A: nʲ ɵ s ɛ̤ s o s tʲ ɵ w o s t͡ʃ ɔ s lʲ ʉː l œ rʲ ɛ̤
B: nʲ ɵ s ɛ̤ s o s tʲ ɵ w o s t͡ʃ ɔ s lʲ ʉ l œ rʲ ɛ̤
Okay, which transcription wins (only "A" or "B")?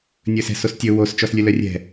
B